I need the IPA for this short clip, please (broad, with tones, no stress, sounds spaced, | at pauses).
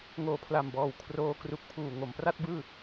ŋ oː˨˩ pʰ l a˨˩ m b ɔː˨˩ w kʰ r oː˧ k r u˨˩ k̚ pʰ uː˨˩ ŋ o˩˦ m p r a˥˩ t̚ b ɯː˥˩